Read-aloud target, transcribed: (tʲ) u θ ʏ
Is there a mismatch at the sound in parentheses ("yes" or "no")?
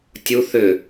no